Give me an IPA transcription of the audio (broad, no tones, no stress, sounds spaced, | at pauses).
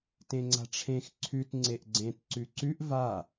t ẽ ŋ͡ǀ a̤ ʈ͡ʂʰ ẽ x ǀʰ ʉ t ŋ͡ǀ e ʔ ɡ͡ǀ ẽ t ǀ ʉ ǀ ʉ ʔ v a